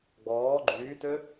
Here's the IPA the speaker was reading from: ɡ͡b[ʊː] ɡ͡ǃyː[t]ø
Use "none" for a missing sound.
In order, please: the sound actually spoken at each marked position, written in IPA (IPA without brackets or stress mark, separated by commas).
ɔː, t